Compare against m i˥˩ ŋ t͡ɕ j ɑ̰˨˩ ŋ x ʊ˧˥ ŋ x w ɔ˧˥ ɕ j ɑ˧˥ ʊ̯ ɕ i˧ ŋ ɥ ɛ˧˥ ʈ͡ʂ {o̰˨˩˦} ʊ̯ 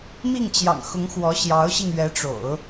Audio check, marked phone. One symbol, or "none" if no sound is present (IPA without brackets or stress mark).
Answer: o̰˨˩˦